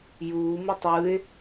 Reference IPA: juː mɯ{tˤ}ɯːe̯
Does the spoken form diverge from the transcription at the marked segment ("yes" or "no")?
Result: no